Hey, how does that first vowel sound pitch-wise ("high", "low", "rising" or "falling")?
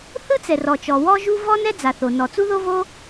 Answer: high